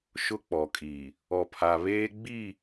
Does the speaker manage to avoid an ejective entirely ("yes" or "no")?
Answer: no